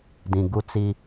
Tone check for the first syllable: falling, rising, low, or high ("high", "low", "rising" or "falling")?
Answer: low